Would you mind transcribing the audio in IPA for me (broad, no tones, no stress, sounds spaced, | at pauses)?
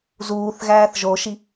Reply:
z uː θ ɣ æː θ ʒ o ʃ i